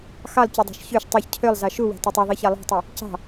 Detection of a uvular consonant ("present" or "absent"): absent